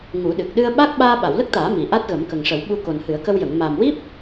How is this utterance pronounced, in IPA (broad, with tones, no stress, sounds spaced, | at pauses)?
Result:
ŋ u˨˩˦ ɗ ɨ˨˩ k̚ ɗ ɨ˧ ə̯ ɓ a˦˥ k̚ ɓ aː˧ ɓ a˨˩˨ w l ə˦˥ k̚ t̪ aː˨˩˦ m i˨˩ ʔ a˦˥ t̚ ɣ ə˨˩˦ m k ə˨˩ ŋ ʂ ə˨˩˦ w ɓ u˧ k o˨˩ n h ɨ˨˩˦ ə̯ k ə˧ w j ə˨˩˨ ŋ m aː˨˩ m w i˦˥ p̚